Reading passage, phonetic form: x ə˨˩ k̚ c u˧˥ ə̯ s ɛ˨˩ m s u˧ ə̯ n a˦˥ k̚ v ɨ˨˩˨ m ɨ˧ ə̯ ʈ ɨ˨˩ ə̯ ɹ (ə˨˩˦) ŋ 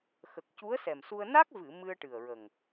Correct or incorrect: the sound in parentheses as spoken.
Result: incorrect: ə˨˩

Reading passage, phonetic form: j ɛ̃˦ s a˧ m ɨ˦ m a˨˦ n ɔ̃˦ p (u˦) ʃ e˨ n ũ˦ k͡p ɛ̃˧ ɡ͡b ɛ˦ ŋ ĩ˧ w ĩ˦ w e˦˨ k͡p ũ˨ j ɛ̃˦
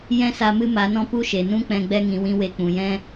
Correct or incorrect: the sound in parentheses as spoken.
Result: correct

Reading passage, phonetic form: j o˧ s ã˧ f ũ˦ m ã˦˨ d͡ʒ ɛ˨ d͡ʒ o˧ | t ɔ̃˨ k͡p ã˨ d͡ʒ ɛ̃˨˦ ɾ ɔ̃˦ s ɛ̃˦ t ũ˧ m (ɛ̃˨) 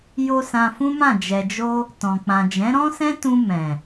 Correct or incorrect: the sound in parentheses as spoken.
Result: correct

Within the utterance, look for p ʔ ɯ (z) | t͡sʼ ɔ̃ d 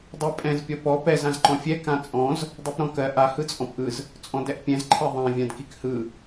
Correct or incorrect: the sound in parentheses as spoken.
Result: correct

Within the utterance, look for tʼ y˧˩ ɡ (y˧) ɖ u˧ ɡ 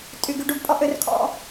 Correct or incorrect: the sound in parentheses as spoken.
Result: correct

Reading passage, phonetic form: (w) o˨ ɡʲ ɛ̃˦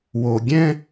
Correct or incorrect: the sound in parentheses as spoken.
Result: correct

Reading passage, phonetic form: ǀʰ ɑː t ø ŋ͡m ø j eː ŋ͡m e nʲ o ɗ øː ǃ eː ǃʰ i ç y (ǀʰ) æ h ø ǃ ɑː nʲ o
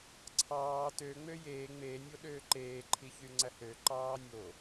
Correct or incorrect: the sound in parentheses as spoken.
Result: incorrect: ŋ͡ǀ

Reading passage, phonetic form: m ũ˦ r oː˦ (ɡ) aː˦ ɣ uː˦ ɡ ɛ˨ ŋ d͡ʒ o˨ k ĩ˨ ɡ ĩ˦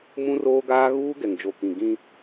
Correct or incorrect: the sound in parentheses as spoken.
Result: correct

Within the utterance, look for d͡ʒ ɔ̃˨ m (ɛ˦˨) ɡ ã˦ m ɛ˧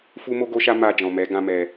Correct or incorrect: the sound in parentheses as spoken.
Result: incorrect: ɛ˨˦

